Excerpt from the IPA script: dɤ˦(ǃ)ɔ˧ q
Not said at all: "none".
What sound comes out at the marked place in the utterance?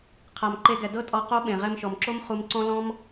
tʼ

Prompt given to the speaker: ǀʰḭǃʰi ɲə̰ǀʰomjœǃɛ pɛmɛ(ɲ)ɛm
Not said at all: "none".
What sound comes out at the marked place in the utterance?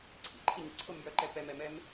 m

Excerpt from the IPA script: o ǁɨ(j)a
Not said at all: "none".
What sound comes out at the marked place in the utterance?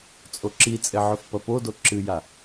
j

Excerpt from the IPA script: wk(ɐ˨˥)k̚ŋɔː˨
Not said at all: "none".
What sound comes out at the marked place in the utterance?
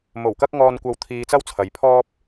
ɐ˧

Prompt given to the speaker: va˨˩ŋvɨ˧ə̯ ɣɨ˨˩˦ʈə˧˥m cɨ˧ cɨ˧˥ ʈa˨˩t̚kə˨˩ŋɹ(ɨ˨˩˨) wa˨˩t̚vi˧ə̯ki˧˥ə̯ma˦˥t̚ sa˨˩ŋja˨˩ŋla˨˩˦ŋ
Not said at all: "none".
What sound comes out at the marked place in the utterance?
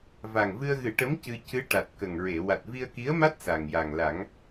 e˨˩˨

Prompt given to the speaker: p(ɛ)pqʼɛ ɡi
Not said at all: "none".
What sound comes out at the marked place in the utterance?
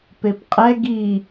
e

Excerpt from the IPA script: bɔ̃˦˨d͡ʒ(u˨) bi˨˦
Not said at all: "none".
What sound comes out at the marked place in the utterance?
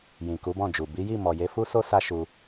u˨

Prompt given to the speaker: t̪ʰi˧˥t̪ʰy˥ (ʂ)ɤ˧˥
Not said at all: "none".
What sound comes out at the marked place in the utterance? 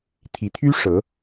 ʂ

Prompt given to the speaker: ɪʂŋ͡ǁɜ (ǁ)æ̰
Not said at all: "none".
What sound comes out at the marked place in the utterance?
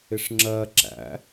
ǁ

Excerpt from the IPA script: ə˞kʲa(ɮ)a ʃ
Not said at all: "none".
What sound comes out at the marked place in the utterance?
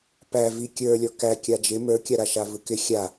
ɾ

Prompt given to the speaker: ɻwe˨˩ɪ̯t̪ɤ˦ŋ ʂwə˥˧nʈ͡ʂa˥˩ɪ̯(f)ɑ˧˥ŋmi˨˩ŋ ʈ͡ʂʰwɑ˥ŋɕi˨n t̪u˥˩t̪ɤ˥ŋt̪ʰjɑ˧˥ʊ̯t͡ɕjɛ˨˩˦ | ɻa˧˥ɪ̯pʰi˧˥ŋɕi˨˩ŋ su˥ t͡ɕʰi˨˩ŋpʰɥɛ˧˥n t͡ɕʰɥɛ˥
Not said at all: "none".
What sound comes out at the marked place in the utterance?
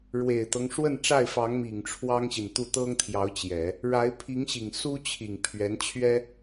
f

